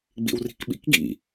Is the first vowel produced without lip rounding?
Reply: yes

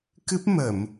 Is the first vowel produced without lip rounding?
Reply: yes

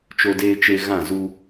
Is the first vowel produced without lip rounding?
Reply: no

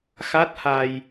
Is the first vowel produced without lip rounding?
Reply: yes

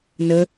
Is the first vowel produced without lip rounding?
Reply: yes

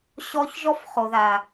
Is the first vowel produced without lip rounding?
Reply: no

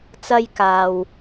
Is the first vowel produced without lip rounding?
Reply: yes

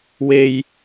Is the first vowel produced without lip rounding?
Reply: yes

